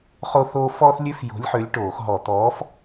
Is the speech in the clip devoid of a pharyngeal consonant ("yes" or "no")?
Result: no